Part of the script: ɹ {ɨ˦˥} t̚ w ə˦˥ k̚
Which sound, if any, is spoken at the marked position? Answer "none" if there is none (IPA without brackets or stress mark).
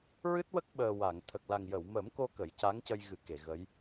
ɨ˦˥